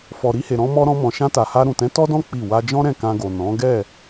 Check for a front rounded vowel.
absent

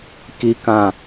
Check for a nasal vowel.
present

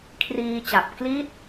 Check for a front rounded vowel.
absent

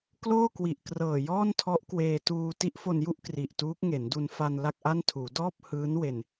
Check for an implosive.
absent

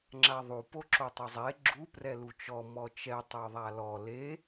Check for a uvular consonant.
absent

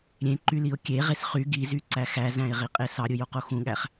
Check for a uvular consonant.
present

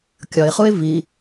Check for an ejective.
absent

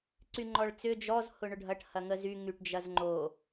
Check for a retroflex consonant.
present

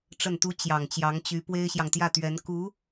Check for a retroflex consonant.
present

